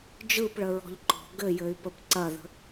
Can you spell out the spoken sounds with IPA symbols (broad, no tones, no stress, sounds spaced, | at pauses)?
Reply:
d͡ʒ ɯ p ɭ ə ɹ ɔ̤ ʎ ǃ ɔ̤ ɡ ɘ j ɘ y̯ p ə p ǀ ɐ ð ə̤